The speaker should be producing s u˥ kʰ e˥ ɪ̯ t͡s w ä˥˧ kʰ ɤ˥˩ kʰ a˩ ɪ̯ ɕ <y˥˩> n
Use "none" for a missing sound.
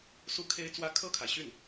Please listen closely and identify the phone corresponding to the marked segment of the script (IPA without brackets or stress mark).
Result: y˥˩